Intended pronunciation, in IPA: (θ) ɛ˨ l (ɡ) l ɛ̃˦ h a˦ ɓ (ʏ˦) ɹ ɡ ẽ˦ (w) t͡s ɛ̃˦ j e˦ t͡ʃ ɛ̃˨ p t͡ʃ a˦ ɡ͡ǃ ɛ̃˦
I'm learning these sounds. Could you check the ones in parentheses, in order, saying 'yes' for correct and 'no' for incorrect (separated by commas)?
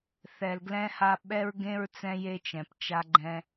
yes, yes, no, no